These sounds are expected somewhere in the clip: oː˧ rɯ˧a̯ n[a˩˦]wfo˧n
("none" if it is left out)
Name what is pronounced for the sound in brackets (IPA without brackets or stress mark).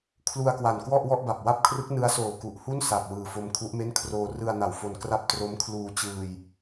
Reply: a˨˩